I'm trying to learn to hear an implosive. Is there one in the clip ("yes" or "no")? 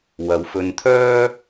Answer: no